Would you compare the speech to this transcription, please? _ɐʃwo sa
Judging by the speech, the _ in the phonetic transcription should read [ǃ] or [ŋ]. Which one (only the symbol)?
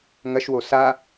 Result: ŋ